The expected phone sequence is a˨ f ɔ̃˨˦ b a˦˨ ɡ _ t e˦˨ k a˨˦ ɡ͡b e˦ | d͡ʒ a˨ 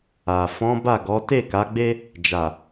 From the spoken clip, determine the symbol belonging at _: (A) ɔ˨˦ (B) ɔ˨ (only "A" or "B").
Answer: A